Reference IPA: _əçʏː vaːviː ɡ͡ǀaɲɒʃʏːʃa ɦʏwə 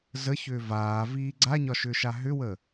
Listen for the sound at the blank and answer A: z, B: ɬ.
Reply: A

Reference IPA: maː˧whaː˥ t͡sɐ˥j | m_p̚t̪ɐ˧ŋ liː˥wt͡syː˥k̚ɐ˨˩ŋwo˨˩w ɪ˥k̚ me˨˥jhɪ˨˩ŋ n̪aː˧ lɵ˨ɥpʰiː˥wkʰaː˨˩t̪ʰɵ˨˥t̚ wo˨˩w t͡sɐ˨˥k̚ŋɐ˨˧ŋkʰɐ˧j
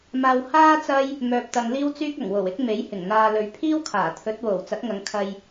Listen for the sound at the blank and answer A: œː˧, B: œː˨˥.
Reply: A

